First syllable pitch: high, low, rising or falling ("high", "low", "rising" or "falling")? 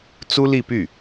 high